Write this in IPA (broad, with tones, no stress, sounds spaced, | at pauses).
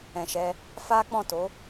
ɛ̃˨ ʃ ɛ˧ | f a˦ k͡p ɔ̃˦˨ t o˨˦